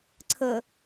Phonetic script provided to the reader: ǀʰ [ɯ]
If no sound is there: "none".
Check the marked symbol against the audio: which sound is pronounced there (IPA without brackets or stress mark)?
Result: ə